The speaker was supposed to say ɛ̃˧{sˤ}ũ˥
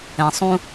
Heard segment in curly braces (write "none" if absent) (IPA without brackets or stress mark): sˤ